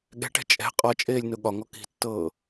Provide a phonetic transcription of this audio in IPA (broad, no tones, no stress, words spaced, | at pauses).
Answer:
ɠɛ̤ʈɛ̤ t͡ʃʼɛ̤ qʼɒt͡ʃʼeːlʲ nʊɠɒŋɔ ki̤tːɤː